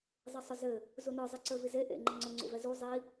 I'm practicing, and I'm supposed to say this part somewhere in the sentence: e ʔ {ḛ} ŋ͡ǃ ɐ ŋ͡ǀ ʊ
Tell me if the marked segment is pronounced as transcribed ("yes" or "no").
yes